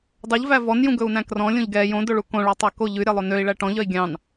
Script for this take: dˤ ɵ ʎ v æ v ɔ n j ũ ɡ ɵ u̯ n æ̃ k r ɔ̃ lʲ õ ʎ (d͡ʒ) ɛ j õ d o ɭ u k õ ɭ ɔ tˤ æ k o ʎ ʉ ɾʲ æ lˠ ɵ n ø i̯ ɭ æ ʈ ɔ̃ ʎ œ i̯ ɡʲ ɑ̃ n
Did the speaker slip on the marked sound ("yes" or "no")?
yes